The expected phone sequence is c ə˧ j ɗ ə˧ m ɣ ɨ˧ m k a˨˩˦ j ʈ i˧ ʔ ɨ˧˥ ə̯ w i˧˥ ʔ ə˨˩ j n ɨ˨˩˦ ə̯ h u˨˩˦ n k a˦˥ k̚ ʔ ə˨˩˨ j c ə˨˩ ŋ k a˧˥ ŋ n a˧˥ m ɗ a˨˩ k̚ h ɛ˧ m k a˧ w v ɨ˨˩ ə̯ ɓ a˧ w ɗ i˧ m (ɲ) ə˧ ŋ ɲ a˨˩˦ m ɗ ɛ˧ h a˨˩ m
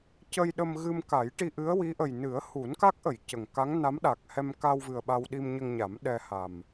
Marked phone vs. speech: correct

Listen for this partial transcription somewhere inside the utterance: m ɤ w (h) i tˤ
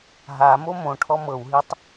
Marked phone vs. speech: incorrect: ɦ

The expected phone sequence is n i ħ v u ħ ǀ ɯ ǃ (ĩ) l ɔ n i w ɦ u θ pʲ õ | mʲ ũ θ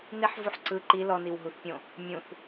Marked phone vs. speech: incorrect: i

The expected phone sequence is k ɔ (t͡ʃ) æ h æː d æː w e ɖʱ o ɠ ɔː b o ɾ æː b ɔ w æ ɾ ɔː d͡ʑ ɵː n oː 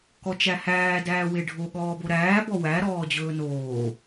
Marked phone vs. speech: correct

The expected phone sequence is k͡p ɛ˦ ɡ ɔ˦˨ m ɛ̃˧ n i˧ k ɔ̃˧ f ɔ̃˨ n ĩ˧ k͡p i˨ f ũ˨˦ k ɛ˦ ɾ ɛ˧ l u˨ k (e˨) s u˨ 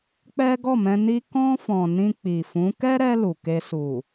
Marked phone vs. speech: incorrect: e˧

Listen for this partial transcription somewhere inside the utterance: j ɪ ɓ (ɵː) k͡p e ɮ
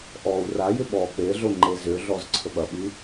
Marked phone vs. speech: incorrect: ɔː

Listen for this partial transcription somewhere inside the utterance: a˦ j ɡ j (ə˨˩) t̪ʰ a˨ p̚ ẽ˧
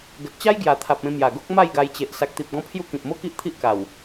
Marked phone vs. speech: incorrect: a˨˩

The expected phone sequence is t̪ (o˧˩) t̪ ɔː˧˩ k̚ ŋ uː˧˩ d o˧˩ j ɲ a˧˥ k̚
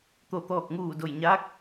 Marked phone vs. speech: correct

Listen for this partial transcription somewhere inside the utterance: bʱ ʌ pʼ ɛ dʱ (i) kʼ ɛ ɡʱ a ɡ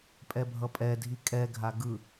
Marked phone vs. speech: correct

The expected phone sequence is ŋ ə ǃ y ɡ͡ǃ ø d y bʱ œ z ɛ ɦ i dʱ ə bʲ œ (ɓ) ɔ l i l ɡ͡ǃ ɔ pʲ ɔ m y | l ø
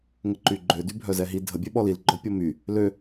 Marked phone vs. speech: correct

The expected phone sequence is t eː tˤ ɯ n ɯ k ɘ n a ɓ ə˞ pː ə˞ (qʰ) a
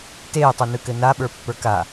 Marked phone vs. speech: incorrect: k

